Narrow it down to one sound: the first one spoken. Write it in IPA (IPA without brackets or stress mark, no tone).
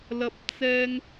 l